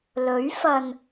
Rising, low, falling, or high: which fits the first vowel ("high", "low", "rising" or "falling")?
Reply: rising